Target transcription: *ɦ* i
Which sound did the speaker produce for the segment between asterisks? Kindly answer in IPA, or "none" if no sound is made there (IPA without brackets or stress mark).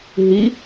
ɦ